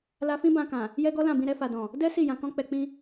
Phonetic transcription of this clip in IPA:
la˧fĩ˦ bã˧kã˨ | jɛ˦ɡɔ˦lã˦˨bĩ˧ ɾɛ˧fa˨dɔ̃˨ | dɛ˦ si˦˨jã˨ kɔ̃˧k͡pɛ˨k͡pĩ˧

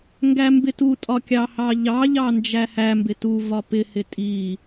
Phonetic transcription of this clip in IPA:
ŋɡæmbɪtutʼɒ kʲɑhɑʎɑʎɑ nd͡ʒæhæmbɪ tu vɒpɪhɪ tʼi

